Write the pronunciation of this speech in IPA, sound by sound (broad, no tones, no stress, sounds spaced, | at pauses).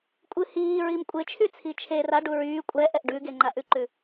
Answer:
kʷʼ ɨ h iː ɹ i m kʷʼ e t͡ʃʰ y t͡sʰ i t͡ʃʰ e r a ɖ u ɹ yː kʷʼ ɛ ʔ ɛ ʔ ɖ ʉ ɡ e ŋ͡ǃ a ʔ ʉ ǃ ʉ